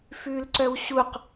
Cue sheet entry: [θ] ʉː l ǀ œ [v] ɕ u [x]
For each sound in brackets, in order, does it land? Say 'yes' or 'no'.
no, no, no

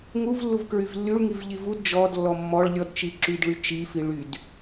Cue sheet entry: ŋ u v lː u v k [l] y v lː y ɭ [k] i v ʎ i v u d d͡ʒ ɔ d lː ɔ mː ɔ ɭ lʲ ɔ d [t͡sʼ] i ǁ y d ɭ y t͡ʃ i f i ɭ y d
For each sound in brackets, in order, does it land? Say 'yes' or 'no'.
no, no, no

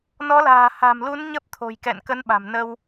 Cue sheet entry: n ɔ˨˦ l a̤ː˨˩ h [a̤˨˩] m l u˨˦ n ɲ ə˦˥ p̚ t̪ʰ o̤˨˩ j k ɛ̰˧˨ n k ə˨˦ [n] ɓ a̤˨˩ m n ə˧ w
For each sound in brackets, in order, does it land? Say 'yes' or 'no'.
yes, yes

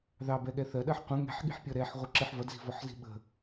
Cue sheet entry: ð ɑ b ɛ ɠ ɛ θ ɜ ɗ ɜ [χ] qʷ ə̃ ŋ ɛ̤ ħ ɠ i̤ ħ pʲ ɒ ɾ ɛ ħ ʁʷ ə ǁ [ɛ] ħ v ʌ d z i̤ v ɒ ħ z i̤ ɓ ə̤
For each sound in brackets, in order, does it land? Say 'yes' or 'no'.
no, no

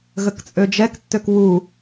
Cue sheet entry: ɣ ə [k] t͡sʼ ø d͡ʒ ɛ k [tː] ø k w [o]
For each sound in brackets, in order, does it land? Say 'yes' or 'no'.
yes, yes, no

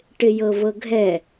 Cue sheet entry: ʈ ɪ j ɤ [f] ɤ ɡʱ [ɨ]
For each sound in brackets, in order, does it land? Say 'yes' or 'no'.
no, no

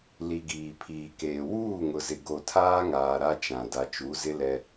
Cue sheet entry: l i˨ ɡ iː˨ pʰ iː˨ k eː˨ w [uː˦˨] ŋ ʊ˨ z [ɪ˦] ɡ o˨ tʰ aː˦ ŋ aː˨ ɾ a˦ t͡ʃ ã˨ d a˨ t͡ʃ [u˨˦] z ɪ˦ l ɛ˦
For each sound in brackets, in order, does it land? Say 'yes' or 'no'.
yes, no, yes

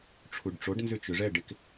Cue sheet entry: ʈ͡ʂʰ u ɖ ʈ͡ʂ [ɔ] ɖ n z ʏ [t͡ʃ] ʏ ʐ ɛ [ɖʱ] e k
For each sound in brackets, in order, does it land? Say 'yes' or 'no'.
no, yes, no

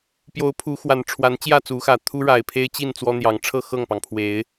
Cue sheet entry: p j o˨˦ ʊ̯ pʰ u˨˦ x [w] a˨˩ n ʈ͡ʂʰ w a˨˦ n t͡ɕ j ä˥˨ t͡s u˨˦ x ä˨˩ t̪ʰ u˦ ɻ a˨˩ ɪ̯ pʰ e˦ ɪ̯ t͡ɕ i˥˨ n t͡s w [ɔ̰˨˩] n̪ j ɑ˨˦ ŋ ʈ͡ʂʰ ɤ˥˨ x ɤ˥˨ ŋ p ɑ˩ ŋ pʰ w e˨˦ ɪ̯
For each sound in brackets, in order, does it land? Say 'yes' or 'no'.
yes, no

